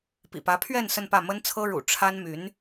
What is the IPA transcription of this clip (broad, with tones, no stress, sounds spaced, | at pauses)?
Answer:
p ḭ˨˩ p ä˧˥ pʰ ɥ ɛ˥˧ n s ə˥˧ n p ä˥˩ m ə˥ n t͡sʰ ɤ˥ ɻ ṵ˨˩ ʈ͡ʂʰ a˥ n m y˧˥ n